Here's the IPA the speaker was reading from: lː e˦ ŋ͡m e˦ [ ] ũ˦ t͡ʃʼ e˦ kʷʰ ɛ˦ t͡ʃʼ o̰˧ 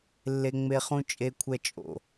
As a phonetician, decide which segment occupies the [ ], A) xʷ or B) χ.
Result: B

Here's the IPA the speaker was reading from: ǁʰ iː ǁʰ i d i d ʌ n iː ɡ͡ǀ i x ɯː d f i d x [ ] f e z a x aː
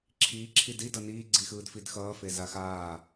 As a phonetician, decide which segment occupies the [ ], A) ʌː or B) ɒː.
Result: A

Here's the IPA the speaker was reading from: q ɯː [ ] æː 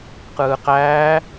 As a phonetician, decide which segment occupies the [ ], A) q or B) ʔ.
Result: A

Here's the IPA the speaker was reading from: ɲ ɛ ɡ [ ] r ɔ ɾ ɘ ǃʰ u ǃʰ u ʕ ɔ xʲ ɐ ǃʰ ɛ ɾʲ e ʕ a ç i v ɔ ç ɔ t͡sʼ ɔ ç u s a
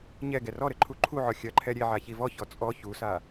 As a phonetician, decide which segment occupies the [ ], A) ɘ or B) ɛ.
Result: B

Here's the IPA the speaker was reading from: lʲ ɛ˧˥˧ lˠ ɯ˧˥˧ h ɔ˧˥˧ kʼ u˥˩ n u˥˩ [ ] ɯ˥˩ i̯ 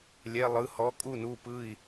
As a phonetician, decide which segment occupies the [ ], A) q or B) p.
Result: B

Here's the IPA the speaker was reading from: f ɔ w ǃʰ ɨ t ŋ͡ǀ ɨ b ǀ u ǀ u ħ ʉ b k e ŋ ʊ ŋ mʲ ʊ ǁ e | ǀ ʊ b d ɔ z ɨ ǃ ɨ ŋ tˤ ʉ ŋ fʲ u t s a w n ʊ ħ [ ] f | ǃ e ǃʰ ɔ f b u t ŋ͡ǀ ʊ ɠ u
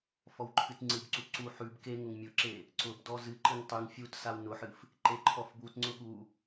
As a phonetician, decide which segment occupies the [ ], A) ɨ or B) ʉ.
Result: A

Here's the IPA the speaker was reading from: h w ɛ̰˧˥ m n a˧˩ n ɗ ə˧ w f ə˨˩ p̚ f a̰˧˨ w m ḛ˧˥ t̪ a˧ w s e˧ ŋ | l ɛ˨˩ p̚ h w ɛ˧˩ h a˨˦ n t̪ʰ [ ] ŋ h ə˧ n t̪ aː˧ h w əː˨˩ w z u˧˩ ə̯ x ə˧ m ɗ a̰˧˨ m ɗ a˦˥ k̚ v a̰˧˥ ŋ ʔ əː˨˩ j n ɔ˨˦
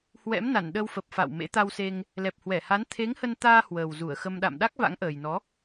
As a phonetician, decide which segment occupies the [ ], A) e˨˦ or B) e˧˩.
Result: A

